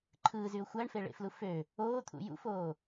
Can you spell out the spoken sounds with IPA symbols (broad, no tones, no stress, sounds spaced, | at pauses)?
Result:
ǃʰ ɯː z y ʊ̯ xʷ æ ɳ f e ɭ ḛ f l u f ø | oː t̪ʰ ṵ j ṵ f oː